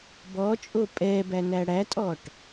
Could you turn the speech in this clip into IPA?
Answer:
b ɔ t͡ʃʼ o pʼ ɛ b æ n æ ɽ æ tʼ ɔ ʈ

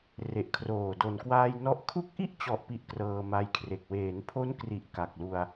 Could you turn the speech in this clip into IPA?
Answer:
r e˨˩ ʔ kʰ r oː˨˩ d o˨˩ n k w aː˧ j n ɔ˦˥ ʔ kʰ u˦˥ k̚ ʔ i˥˩ ʔ t͡ɕ ɔ˨˩ ʔ p i˨˩ ʔ k r ɤː˧ m a˦˥ j kʰ r e˨˩ k̚ w eː˩˦ n pʰ o˦˥ n k r i˨˩ ʔ k a˨˩ k̚ l u˧ a̯

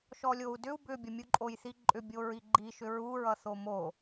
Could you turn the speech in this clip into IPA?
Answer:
ʃ ɔ lʲ o u̯ d ʏ u̯ b ʏ bʲ ʌ mʲ u ǃʼ o j θ i ǃʼ ʏ bʲ o ɹ i ɡ͡ǃ i ʃ ʏ ɹ u ɹ ʌ θ o m o

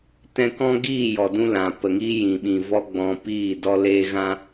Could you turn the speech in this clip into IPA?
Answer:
t ɛ̃˧ k ɔ̃˦ ɡ iː˦˨ j ɔ˨ d ũ˧ l ã˨ p ə˨ ŋ iː˦ j ĩ˨ ɓ ĩ˨ v ɔ˦ ɡ͡b ɔ̃˧ p iː˦˨ d ɔ˦ l eː˦ ɣ ã˦

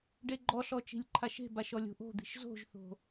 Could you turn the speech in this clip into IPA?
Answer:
ɖ e ɡ͡ǃ ɔ ɬ ɔ t͡ʃ i̤ lʲ ǃʰ a ʃ e̤ b a ʃ ɔ lʲ o̤ ʔ o̤ d̪ i̤ ʃ z o̤ ʒ θ o̤

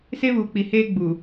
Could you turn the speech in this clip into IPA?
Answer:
s e˦ β uː˨ k͡p i˨ h eː˦ ɡ͡b u˨

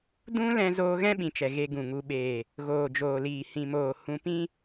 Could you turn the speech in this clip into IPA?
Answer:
d ũ˦ l ɛ̃˧ z oː˧ ɣ ɛ̃˦ ɓ ĩ˨ t͡ʃ ɛ˨ ɣ e˧ ɡ ũ˨ ŋ u˨ ɓ eː˨ | ɣ oː˨ d͡ʒ oː˨ l iː˨ h ĩ˨ m oː˨ h ũ˧ p ĩ˦

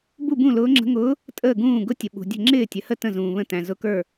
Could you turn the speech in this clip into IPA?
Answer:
b u˥˩ b ũ˥˩ l ʊː˧˥ ŋ͡ǁ ə̤˧˥ ŋ ʊː˧˥ | tʼ əː˥˩ ɡ ũː˥˩ ɡ ʊ˧˥ tʲ ə˨ ɓ ṳ˨ dʲ ə̤˥˩ ŋ͡ǁ ɪː˥˩ tʲ ə˨ h ə˥˩ t ə̃˥˩ z ũː˨ β ə̃˥˩ t æ̃˨ z ʊ˧˥ k ə˞˥˩

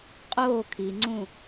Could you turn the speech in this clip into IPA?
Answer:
qʼ oː kʰ i ŋ͡ǀ ũ

